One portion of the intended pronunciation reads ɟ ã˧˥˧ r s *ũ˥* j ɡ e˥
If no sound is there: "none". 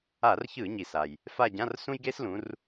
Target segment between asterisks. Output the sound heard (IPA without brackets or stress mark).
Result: ũ˥